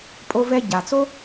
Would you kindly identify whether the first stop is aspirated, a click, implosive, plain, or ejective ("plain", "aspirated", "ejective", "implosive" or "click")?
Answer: ejective